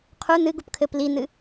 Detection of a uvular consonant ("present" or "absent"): present